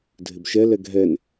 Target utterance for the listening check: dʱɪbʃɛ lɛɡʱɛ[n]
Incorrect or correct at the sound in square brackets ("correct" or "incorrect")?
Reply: correct